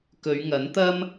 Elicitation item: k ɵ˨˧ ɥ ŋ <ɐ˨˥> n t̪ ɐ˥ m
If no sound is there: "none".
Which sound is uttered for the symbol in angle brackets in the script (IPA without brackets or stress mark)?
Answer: ɐ˨˥